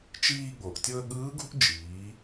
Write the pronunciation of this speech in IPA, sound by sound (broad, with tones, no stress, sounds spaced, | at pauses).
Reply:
t͡ʃ iː˧ ɠ o˩ ʔ tʲ ɤ˧ ə̯ ɠ ɯː˧˥ ɡ ṳ˥ ʔ d͡ʒ iː˩˧